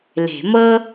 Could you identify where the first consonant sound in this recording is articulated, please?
alveolar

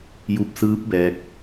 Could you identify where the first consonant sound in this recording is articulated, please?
palatal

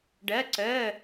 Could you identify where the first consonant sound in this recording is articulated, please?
retroflex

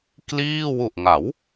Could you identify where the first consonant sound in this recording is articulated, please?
velar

